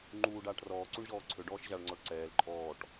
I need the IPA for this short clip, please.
ŋ͡ǃ uː ɖ aː ʈ r ɔː ǀ u ɳ ʑ ɔː ǀʰ ø ɖ ɔː ʃ ʑ a ɭ ŋ͡ǀ ɔ ɭ ǀ ɛː l ǃʼ ɔː ʈ

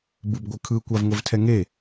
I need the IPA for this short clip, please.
b ɯ b ɡʷ ɯ kʰ ɯ kʷ a v ŋʷ e v tʰ ɛ ŋ e

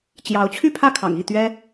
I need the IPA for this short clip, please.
t͡ɕ j ɑ˧˥ ʊ̯ t͡ɕʰ y˥˧ pʰ ä˥˩ kʰ ɑ̰˨˩ ŋ i˥˩ t̪ ɥ ɛ˥

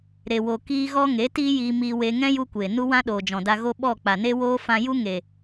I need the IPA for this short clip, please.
ɾ e˧ w o˧ k iː˦ ɣ ɔ˦ ŋ e˨˦ t iː˦ j iː˧ m iː˧ w e˧ ŋ ɛ̃˦ j u˧ kʷ eː˨ n u˦ w ã˦ ɗ oː˨ d͡ʒ ɔ̃˨ d a˧ ɣ o˦ ɓ ɔ˦˨ k͡p a˨ n e˦ w oː˦ f ã˧ j u˦ ŋ e˨

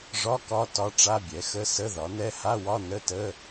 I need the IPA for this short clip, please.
ʐ ɒ˧˥˧ k ɒ˧˥˧ t ɒ˧˥˧ ʈ͡ʂ a˧˥˧ bʲ ɛ˩˥ x ə˧˥˧ s ə˧˥˧ ð ɒ˩˥ n ɛ˧˥˧ h a˧˥˧ w ɒ˧˥˧ n ə˧˥˧ t ə˧˥˧

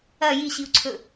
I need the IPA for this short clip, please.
ɐ j i ɕ i u̯ ǀʰ ɵ

